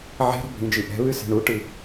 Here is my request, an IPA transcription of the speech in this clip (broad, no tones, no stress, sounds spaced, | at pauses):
ʕ e̤ ɾ ɔ̤ bʱ ĩ d͡ʒ i ʔ ɛ̤ β ɨ s e̤ ɳ u ʈ ɨ